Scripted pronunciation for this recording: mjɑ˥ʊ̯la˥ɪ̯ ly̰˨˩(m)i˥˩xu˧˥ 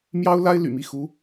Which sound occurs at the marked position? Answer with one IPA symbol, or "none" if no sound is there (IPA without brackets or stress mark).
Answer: m